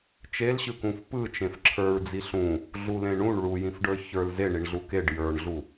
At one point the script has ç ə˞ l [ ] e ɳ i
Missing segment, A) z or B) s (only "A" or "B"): A